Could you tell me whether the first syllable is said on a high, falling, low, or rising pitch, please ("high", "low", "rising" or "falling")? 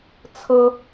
high